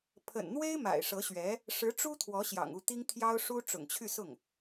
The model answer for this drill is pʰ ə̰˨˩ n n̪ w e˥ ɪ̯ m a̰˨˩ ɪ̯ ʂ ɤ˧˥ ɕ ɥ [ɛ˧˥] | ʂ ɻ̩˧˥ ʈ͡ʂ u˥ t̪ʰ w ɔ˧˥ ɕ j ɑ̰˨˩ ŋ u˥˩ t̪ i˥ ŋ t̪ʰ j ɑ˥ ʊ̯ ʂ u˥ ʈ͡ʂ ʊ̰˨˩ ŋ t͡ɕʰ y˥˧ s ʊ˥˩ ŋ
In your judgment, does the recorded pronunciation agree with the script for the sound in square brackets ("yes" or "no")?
yes